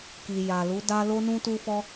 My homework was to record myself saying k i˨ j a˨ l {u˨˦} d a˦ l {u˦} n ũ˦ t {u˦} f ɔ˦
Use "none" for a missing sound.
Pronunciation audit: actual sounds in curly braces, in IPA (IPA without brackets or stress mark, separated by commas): u˨˦, o˦, u˦